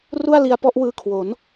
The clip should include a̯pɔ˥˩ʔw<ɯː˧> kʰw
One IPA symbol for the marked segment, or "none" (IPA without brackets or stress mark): ɯː˧